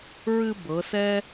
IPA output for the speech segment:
ɹ ɨ˧ b ɤ˩˧ s ɛ˥

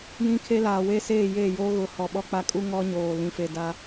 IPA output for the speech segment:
j ĩ˦ kʰ e˦ l aː˨ w e˦ s eː˦˨ j eː˦˨ j oː˦ ɣ ʊ˨˦ h ɔ˨ ɓ ɔ˦ k͡p a˦ kʼ u˦ ŋ ɔ˦ ɲ oː˨ l ĩ˨ f e˨ d a˦

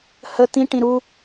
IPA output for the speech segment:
h ə t̪ ĩ ʈ ĩ ɾ u

